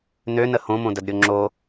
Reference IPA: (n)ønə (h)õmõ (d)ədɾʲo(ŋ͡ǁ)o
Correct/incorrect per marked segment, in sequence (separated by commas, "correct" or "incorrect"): correct, correct, correct, correct